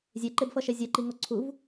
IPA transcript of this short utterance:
zʲ e ǃ e b f ʌ ʃ ɛ zʲ ɛ ǃ i ŋ o ǀʰ u v

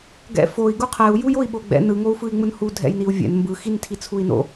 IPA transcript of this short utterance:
ɡ ɛ̰ f o i̯ ɡ u qʰ ɛ u̯ j u j o i̯ ɓ o ɡ͡b ɛ̰ n ɯ ŋ o u̯ f ɯ i̯ ŋ͡m ɯ n h u dʱ ɛ̰ j n i u̯ vʲ ɛ̰ n m b ɯ x i n tʰ i t͡sʰ u i̯ n o̰

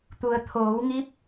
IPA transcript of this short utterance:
t̪ u˩ ə̯ t̪ʰ oː˩˧ w ŋ i˧˥ p̚

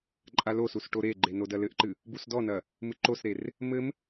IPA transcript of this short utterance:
ǃʼ a l o s u s ʈ o ɾ e ɡ͡ǃ e n o d ɐ l ɘ ʔ ǃ ɨ | b u s d ɔ n ɐ | m ɨ ǃ o s ɾ e r | m ɘ m

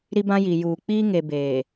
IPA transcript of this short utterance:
ɾ i˦ b ã˦ j i˨ j uː˨ k͡p iː˦ ŋ e˨ b eː˨

